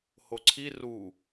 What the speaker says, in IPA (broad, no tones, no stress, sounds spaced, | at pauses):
h o ǀʰ i r u